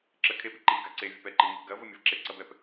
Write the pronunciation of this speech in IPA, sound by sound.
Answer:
ǁ ə kʰ e p i ǃ i ɡ a ǀ e vʲ ə p ɛ ǃ i ŋ i p ɡ ɐ v ə mʲ ɐ v ǁ e ǀ ɐ b ɛ p

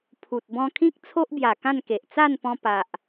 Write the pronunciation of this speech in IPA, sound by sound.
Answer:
pʰ u˨ t̚ b ɔ̃˧ kʰ ĩ˦ k̚ t͡sʰ o˦ ʔ b j a˨˩ k ã˥˧ n k e˨ ʔ t͡s a˥˧ n p ɔ̃˧ p a˨ ʔ

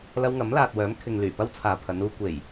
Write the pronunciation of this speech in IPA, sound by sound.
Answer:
l ɐ˧ w ŋ ɐ˨˥ m l aː˨ t̚ w œː˨˥ m kʰ ɪ˨ ŋ l yː˨˩ p ɐ˥ w t͡sʰ aː˨ pʰ ɐ˨˧ n uː˧ kʷ e˨˩ j

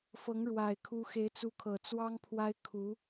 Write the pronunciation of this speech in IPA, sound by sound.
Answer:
f ɤ˧˥ ŋ ɻ w a˨˩ ɪ̯ kʰ u˧˥ x e˧˥ ɪ̯ t͡s u˧˥ kʰ ɤ˨˩ t͡s w ɑ˥ ŋ pʰ w a˥ ɪ̯ kʰ u˧˥

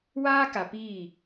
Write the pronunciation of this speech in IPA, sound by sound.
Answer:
w aː˦ k a˨ p iː˦˨

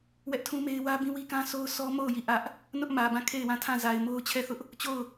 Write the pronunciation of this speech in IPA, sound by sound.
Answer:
w ɛ˦ ʔ tʰ ũ˦ m e˦ ɪ̯ w ä˦ b ĩ˦ w i˦ k ã˦ s o˦ ʊ̯ s ɔ˦ m o˦˨ ʊ̯ j i˦˨ ʔ ä˦ ʔ | n ʊ˦ ʔ m ä˨ b ã˦˨ kʰ e˦˨ ɪ̯ w ã˦˨ tʰ ã˦˨ z a˨ ɪ̯ m o˦ ʊ̯ t͡ɕʰ ɛ˦˨ θ ʊ˦ ʔ | t͡ɕ o˦˨ ʊ̯

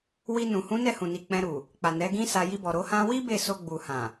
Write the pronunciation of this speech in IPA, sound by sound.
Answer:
w i˧ n ũ˨ h ũ˨˦ n ɛ˦˨ h ũ˨ n i˨ k͡p ɛ̃˧ ɾ u˨ | k͡p a˨ n ɛ˨˦ ɡ ĩ˦ s a˧ j i˧ b ɔ˨ ɾ o˧ h ã˦ w i˦ b e˦˨ s o˧ ɡ͡b u˨ h ã˨

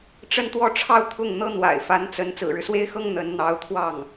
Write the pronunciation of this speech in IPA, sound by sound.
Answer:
ʈ͡ʂ ə˥˧ n t̪ w ɔ˥˧ ʈ͡ʂʰ ɑ˥˧ ʊ̯ t̪ʰ ʊ˥˩ ŋ n̪ ɤ˥ n̪ w a̰˨˩ ɪ̯ f a˧˥ n t͡s ə˧˥ n t͡s ɹ̩˨˩ ɻ ɻ̩˦ s w e˥ ɪ̯ x ɤ˥ ŋ n̪ ə˧˥ n n̪ ɑ˧˥ ʊ̯ t̪ʰ w ɑ˥˩ ŋ

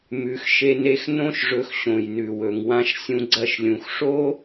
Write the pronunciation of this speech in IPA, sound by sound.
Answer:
m ʉ˨ x ʃ e˧ n e˧ x n õ˦ ʃ ʐ ɵ˧ x ɕ õ˨ j n ʉ˨ w ɵ˨ ŋ w ã˧ ʃ sʲ ũ˧ ɡ͡ǀ ɐ˧ ʃ lʲ ũ˨ x ʂ o˦

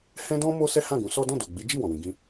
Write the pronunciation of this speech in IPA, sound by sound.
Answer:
h ɛ̃˦ d ɔ̃˦ m o˦ s ɛ˦ h ã˦˨ ɡ ũ˨˦ s ɔ˦ d ɔ̃˦˨ d o˨ ɡ͡b i˨˦ d͡ʒ i˦˨ w ɔ̃˨ w ĩ˧ ɡ ĩ˦

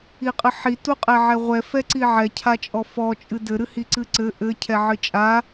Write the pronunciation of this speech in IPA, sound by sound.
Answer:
i qʼ ɨ ħ i t u qʼ ɛ ʕ ɛ ʁʷ ɛ f ɛ ǀ i ʕ ɛ cʰ a t͡ʃʼ ɔ f ɔ t͡ʃʼ ɨ d ɘ ɾ ɨ h i ǀ ɨ ǀ ɘ ʔ ɘ cʰ ɛ ʕ ɨ t͡ʃʼ a

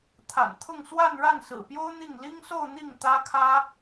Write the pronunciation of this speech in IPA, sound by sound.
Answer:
t̪ʰ a̰˨˩ n t̪ʰ ʊ˥˧ ŋ s w a˥˧ n ɻ a˥˩ n s ɹ̩˨˩ p j o˥ ʊ̯ n̪ i˥˩ ŋ l i˥ ŋ s o˥˧ ʊ̯ n̪ i˥˩ ŋ t̪ ä˥ kʰ ä˥

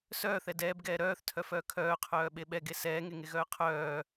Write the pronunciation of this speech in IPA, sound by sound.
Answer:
s œː θ ɛ d ɛː b ɡ ɛː ɾ œː θ tʰ œ f œː kʰ œː qʰ œː ɓ e ɓ ɛ ɡ e s ɛː ŋ e ŋ e ɣ œː qʰ œː

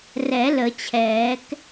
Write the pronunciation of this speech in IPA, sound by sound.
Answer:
r ɛ˨˩˦ l ə˨˩˦ t͡ɕʰ ɛː˨˩˦ k

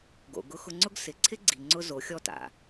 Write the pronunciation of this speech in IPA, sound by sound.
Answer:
ɡ o̰˨ ɡ ʊ˧ x ʊ˧ ŋ͡ǀ ʊ˦ ɡ s ɪ˨ ǀʰ ɪ˦ ɡ͡ǀ i˨ ŋ͡ǀ ʊ˧ z o˨˦ xʲ ɔ˦ t a̰˨

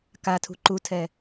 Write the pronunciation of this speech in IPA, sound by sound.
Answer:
k a tʰ ṳ ǃ u tʰ ɛ

